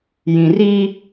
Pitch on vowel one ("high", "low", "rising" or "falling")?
low